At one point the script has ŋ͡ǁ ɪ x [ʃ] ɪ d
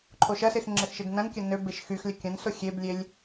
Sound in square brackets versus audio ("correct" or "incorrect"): correct